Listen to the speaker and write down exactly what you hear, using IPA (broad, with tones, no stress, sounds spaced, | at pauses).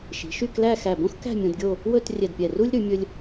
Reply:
ʃ i̤˩˧ ʃ y˥˧ k l æ˥˧ x æ˧˩ b õ˥ x k æ̤˥˧ mʲ õ˧ d ɡʲ o˥˧ | w ɵ˥˧ t rʲ ɛ˧˩ d pʲ ɛ˧˩ r u˥ lʲ ɾ ʉ˩˧ mʲ ɵ˧ lʲ